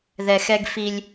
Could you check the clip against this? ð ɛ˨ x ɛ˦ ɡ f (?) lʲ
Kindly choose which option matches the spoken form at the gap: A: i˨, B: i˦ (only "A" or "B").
B